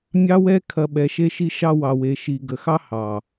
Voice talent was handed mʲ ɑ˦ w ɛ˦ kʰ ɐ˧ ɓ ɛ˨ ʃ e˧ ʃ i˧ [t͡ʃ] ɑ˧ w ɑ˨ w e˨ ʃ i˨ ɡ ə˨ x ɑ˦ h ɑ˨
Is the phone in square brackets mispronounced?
yes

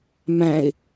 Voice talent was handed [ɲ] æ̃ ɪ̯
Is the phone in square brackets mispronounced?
yes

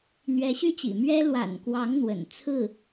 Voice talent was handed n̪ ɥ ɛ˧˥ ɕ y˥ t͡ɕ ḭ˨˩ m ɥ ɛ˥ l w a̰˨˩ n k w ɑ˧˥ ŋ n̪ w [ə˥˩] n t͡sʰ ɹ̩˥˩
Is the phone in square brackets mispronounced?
yes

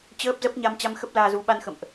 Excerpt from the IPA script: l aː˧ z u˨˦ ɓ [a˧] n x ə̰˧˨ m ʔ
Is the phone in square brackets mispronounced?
no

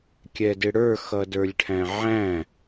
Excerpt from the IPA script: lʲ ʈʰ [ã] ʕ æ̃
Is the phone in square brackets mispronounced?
yes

